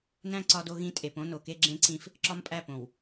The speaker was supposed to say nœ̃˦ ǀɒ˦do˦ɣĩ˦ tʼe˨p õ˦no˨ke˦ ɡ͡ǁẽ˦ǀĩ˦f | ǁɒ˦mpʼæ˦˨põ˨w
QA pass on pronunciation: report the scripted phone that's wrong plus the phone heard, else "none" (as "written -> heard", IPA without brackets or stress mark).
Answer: œ̃˦ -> æ̃˦